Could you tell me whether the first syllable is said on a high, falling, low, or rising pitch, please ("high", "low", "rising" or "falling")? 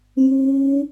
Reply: high